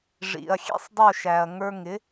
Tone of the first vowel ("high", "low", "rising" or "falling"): low